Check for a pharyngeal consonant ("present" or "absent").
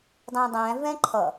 absent